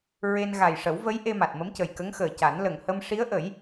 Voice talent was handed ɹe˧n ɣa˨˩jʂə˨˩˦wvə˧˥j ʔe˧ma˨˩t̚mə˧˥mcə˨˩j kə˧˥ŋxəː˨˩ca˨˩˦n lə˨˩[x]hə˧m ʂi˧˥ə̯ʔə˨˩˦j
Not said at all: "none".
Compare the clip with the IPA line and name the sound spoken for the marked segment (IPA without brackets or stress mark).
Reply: ŋ